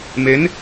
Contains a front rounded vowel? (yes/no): no